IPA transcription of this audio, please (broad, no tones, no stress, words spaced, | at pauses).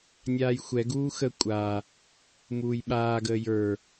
nʲaːjxʷɛɡuː xə kʷʼa | muːjɓaːɡəː jə˞